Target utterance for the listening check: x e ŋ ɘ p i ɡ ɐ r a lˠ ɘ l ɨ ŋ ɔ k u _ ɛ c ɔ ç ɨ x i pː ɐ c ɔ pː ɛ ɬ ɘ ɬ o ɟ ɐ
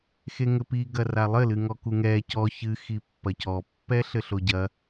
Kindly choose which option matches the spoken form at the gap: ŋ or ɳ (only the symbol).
ŋ